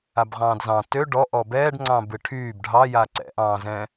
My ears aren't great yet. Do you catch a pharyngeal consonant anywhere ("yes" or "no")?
no